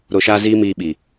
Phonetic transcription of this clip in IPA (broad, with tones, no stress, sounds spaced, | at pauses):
ɾ o˨ ʃ aː˧ z iː˧ m iː˨ ɓ i˨